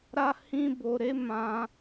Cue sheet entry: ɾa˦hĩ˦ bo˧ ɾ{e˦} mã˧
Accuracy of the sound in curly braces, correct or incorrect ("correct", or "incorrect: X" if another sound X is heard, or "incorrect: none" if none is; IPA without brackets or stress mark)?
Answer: correct